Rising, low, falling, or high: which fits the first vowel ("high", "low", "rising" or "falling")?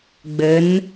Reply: rising